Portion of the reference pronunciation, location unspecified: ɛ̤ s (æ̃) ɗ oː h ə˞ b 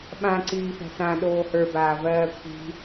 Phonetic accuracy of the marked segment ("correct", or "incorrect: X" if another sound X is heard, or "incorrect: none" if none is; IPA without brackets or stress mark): incorrect: ã